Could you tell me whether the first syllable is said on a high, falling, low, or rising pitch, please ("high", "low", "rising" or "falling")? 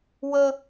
high